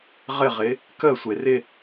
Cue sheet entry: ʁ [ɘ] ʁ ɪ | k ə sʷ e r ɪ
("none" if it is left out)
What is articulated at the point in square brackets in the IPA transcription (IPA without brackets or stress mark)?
ɘ